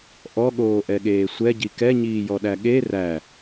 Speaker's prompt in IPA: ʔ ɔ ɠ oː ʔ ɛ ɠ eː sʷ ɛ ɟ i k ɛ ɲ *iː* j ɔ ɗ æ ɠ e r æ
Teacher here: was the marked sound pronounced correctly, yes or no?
yes